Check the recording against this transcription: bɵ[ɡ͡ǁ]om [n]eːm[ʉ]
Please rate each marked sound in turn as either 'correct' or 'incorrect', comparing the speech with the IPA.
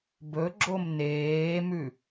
correct, correct, correct

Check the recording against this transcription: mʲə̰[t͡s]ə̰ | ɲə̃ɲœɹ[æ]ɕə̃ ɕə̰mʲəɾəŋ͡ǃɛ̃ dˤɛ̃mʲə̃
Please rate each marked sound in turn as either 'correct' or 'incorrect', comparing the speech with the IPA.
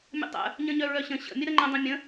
incorrect, incorrect

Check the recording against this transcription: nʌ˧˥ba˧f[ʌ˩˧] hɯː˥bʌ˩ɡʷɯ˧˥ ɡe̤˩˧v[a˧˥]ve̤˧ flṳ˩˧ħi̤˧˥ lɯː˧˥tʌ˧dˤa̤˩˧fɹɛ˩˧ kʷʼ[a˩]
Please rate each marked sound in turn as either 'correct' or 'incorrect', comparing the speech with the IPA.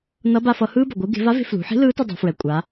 incorrect, correct, incorrect

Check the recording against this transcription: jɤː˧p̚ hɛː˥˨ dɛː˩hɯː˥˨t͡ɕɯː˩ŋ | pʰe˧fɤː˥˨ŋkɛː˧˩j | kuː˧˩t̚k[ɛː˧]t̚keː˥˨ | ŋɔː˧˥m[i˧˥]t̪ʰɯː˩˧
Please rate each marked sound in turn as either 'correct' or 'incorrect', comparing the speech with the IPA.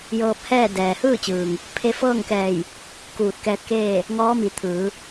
correct, incorrect

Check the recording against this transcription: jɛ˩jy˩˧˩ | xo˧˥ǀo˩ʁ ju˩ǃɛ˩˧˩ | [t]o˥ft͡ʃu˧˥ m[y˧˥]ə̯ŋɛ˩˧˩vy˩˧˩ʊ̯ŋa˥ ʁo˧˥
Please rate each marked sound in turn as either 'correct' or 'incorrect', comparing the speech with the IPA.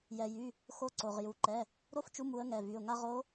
incorrect, incorrect

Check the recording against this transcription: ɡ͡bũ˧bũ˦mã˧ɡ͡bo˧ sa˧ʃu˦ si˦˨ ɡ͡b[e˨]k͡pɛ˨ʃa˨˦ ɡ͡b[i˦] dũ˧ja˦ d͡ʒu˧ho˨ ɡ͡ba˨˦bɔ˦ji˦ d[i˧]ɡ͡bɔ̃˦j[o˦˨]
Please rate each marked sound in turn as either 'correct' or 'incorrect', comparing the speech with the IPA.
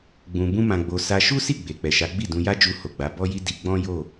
correct, incorrect, correct, correct

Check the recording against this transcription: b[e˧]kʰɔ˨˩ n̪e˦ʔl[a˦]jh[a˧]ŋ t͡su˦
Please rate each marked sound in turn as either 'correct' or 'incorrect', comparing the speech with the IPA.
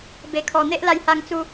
incorrect, incorrect, correct

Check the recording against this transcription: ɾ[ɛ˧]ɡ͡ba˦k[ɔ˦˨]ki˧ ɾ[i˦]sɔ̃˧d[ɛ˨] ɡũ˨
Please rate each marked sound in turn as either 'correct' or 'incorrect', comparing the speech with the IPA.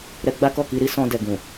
correct, correct, correct, correct

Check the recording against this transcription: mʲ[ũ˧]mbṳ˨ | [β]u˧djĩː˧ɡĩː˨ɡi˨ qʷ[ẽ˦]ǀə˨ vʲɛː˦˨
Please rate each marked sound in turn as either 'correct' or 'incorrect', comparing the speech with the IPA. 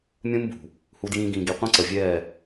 incorrect, incorrect, incorrect

